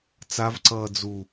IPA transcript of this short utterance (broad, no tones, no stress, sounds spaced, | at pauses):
t͡s a v ǀ ʌː d͡z u